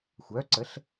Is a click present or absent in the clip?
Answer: present